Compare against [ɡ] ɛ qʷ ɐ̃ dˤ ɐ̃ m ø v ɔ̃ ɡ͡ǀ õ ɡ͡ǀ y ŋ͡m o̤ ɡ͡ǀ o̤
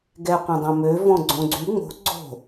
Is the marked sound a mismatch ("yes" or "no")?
no